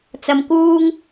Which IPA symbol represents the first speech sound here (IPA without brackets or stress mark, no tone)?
t͡s